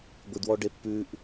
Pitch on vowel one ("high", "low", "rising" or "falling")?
low